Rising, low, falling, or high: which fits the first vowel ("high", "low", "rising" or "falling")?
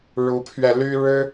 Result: rising